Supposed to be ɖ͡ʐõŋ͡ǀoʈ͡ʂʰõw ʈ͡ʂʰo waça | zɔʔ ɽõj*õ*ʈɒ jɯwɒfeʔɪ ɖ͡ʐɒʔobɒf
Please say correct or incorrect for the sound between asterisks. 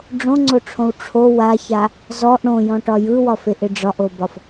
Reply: incorrect